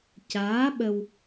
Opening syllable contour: rising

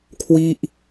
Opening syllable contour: falling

